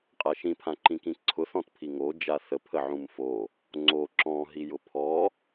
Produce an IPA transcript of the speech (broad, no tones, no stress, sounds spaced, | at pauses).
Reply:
qʼ a ʃ ĩ pʰ ã ǃ ĩ k ĩ ǀʰ ʊ θ ɔ̃ t pʰ i ŋ o d͡ʒ a θ ə pʰ ə ʕ ũ m f o | ŋ͡ǀ o ǁ ɔ̃ ɦ i j ʊ pʰ ɔ